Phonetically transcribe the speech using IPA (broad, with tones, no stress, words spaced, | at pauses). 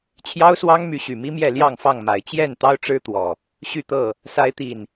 t͡ɕʰjɑ˦ʊ̯swɑ˦ŋmy˨˦ ɕy˨˩mi˦mjɛ˥˨ ljɑ˥˨ŋfɑ˥˨ŋma˨˩ɪ̯ t͡ɕjɛ˥˨nt̪ɑ˦ʊ̯ʈ͡ʂɻ̩˦t̪wɔ˨˩ | ɕy˥˨t̪ɤ˥˨ | sa˨˦ɪ̯t̪i˨˩n